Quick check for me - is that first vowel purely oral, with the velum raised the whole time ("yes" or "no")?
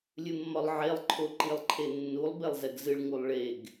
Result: yes